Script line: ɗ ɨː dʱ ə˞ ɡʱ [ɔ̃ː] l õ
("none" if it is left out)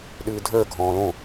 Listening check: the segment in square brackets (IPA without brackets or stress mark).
ɔ̃ː